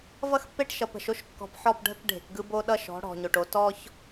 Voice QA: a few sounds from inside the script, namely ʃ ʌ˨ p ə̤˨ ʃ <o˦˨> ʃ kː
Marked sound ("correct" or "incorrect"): incorrect